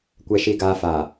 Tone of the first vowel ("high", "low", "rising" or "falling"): low